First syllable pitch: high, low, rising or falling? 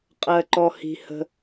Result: low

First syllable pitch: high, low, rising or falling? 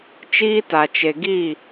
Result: high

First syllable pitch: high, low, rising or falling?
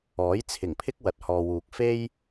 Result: rising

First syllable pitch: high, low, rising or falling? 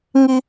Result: high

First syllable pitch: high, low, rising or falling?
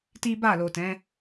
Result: high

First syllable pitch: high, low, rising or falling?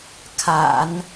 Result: low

